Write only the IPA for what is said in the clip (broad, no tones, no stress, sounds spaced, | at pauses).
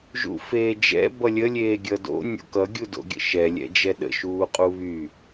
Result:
ʒ ṵ f eː d͡ʒ ɛ̰ b ʌ lʲ ə lʲ eː ɡʲ ʌ d o̰ nʲ o̰ k ʌ ɡʲ u d o̰ ɡʲ ə̰ ʃ ɛ lʲ ɛ̰ d͡ʒ ɛ ɗ ə̰ ʃ uː qʼ u β y